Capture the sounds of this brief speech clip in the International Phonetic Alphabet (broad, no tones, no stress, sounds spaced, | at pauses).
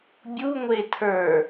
bʲ u ŋʷ e tʰ ə˞